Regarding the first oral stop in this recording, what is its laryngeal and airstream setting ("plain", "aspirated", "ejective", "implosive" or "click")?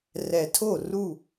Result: aspirated